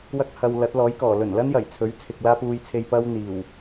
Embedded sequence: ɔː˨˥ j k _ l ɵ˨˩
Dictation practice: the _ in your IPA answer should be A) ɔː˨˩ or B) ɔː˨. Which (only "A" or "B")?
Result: A